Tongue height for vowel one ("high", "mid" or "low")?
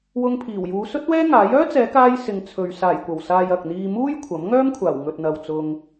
high